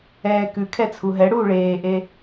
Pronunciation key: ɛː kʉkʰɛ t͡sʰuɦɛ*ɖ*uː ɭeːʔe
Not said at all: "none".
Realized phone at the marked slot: ɽ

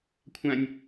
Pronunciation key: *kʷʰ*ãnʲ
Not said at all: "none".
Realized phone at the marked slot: kʷʰ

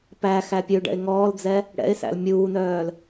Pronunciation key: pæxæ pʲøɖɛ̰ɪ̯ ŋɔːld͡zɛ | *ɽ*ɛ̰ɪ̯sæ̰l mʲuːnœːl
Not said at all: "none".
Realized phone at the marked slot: ɽ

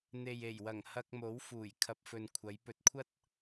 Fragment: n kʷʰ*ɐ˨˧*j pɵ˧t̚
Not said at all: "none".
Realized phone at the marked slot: ɐ˨˧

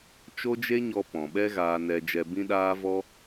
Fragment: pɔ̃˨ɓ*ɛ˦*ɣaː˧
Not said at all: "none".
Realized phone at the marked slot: ɛ˦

